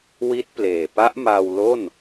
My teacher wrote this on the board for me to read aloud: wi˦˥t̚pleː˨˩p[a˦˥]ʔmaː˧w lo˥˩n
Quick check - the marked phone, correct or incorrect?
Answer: correct